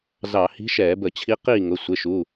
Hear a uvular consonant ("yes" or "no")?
yes